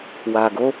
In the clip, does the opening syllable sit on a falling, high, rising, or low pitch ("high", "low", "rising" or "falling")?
low